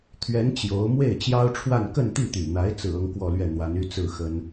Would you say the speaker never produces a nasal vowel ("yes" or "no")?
yes